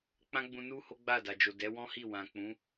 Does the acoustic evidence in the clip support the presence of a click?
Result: no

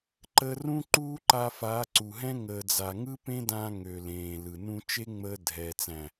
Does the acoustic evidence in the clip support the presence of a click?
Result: yes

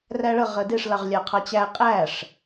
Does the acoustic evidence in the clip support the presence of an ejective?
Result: yes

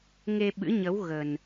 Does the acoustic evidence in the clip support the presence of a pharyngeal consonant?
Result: no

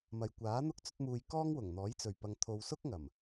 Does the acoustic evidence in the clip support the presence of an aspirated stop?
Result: yes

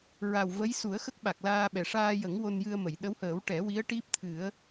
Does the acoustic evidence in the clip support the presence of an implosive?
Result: yes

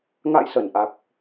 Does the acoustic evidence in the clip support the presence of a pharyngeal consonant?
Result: no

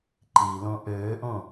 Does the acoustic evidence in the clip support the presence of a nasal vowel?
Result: yes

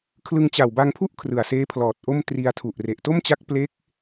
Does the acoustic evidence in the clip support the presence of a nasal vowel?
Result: no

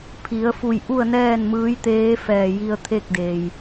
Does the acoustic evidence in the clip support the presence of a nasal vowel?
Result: no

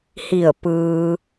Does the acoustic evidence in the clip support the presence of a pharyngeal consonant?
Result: no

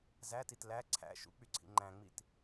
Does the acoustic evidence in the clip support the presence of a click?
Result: yes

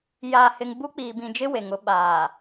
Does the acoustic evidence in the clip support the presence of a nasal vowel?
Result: yes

